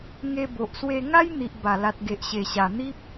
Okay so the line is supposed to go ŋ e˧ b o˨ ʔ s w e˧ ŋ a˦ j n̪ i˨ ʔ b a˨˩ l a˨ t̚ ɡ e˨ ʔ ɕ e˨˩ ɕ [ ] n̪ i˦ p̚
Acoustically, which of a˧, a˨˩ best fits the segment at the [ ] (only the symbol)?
a˨˩